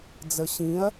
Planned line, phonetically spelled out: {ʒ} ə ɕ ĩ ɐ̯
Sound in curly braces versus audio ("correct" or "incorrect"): incorrect